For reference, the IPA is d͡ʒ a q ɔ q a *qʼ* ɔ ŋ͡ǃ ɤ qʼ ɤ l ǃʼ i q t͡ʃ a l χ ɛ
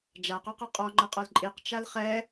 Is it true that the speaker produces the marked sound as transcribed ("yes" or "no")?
yes